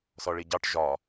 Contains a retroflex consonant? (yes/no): yes